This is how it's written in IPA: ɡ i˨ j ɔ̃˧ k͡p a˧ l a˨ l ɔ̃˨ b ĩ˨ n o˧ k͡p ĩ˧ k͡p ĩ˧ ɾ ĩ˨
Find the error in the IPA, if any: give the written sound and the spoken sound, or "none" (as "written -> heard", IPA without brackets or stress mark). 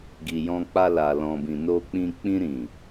none